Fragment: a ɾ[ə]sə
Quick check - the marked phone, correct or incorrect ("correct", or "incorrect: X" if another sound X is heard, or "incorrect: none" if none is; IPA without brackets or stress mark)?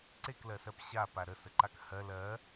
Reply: correct